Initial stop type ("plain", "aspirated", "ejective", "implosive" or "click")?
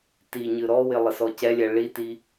plain